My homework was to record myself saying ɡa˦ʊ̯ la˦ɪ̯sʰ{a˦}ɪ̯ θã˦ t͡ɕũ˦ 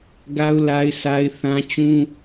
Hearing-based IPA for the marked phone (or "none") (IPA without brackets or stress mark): a˦